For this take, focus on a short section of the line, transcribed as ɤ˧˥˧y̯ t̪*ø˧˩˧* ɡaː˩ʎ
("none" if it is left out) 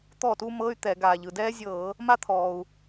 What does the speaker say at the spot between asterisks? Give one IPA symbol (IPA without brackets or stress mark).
ɛ˧˩˧